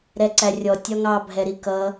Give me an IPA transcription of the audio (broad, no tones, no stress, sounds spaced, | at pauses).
ɾ ɛ ǀ æ rʲ ɔ tʲ ɒ ŋ ɑ bʱ ɛ ɾ i k ʌ